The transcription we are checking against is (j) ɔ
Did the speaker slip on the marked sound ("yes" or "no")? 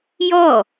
no